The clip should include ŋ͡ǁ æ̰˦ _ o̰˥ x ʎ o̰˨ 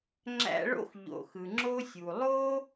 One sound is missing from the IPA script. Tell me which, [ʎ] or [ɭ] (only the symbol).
ɭ